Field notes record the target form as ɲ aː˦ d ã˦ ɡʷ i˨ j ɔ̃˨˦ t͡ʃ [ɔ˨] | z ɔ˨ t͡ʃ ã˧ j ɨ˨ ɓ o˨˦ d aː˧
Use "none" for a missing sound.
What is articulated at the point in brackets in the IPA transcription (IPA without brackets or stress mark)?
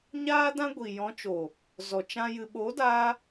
o˨